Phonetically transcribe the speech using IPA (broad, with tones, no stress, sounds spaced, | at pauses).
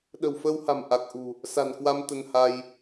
ɗ ə̤˨˩ w f əː˧ w h a̤˨˩ m ʔ a˨˩ k̚ ʔ ṳ˨˩ | s a̤˨˩ n k w a˧ m t̪ ə˧ n h a˧ j